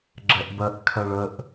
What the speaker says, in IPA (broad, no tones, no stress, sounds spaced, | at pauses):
ɡ͡ǁ ɛ ʔ b ɜ ʔ kʰ ɜ ɭ ə ʔ